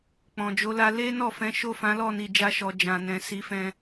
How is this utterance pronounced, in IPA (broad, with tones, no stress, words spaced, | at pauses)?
k͡pɔ̃˨d͡ʒo˨˦la˧ le˦nɔ˦˨fɛ̃˨˦ ʃo˦˨fã˨˦ lɔ˦˨ni˨ d͡ʒa˧ʃɔ˨ d͡ʒã˨nɛ̃˨ si˨˦fɛ̃˧